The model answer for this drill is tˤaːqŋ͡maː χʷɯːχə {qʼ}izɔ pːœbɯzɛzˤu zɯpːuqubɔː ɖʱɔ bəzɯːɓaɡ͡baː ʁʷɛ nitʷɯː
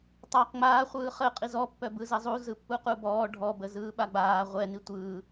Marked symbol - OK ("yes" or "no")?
yes